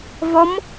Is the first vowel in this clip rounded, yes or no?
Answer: yes